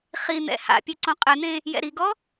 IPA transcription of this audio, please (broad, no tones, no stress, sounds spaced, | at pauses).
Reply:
χ i n̪ ɛ̰ h a̰ pʲ e ǀ õ qʼ e n̪ ẽ | j ɛ̰ ɾ i ɡ ɔ